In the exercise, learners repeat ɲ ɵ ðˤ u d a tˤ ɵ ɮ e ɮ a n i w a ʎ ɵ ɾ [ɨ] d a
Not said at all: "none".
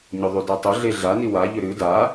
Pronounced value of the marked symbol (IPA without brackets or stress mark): ɨ